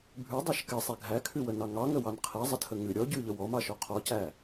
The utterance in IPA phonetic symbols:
bʱʉdˤɑʃ kɛsˤæ ɡʱækʰʉwənɑ ŋɑŋəwɑn qʰɛzˤətʰə ŋʉ ɾʲɔ ɟʉʎə wɔmɑʃɔ qʰɔcæ

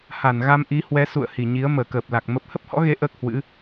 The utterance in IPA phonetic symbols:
ha˧˩nɣa˧mʔi˨˦hwɛ˨˦ sṵ˧˨ə̯hi˧˩ɲi˨˦ə̯ məː˧˩kəː˨˩p̚la˨˩k̚ mə˦˥p̚ hə˦˥p̚hɔ̰˧˥ɣe˨˦ ʔəː˦˥k̚hwɨ̰˧˥

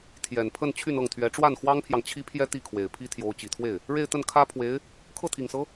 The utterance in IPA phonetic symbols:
t̪ʰjɛ˨˩npʰə˥˧n t͡ɕʰy˥˧nɤ˥˩ŋt̪ʰɥɛ˧˥ ʈ͡ʂwa˥˩nxwɑ˥ŋpʰjɑ˨ŋ t͡ɕʰi˥pʰjɛ˥ t̪i˥˩kʰwe˨˩ɪ̯pʰi˥ t̪ʰjo˧˥ʊ̯t͡ɕi˨˩t̪ʰwe˥˩ɪ̯ | ɻe˥˧ɪ̯t̪ə˥˩n kʰä˥pʰwe˧˥ɪ̯ | kʰɤ˥˩t̪ʰi˨˩ŋsɤ˧˥

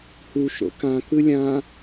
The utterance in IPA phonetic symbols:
hu ʃo̰kã kɯlʲã

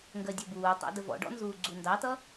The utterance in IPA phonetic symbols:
ŋɡɜdʲʌbuːtˤæ̰ dəvɔ̰ɖɔ̰ nzuːɡ͡ǀundɑtʌ

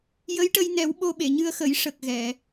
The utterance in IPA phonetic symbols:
jə˧˥jʈə˧jnɛ˨˩˦w ɓo˧ɓe˨˩˨ɲɨ˧ə̯xə˨˩˦j ʂə˨˩k̚ ɣɛ˨˩˨

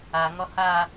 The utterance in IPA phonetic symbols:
a ŋɒha

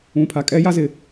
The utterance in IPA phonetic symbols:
ũ˨pʰa˨kʼɛ˦ ja˦zɪ˨

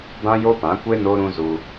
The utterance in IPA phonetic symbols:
bã˦jo˦pã˨˦kʷe˦ no˦ɾũ˦zu˧

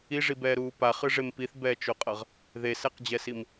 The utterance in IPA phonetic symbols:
iʐibɛːɾuː paχɯʐem piθbɛːt͡ʃoqʼʌʁ | ðesɛqd͡ʑɛsim

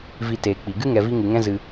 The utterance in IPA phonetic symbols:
vi˧teː˨k͡pi˨ ɡɨ˦ŋɛ˨vi˧ ŋɨ˨ŋɛ̃˦zɨ˧

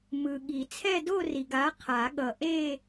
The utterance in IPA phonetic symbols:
mɯ˨ɠi˨˩˦ t͡sʰɛ˥˧do˥˧ri˨ ɡa˨˥qʰa˨˩˦ɠʌ˨ʔe˥˧

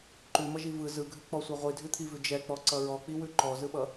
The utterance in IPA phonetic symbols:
ǃʉmʌʒi vɯ zɯɡʱʉk͡pɔsʷɯ ʁʷidʱʉt̪ʰivʉ d͡ʒɛk͡pɔǀʌ ɹɔk͡piwʉ ǃɔzɯɓʌ

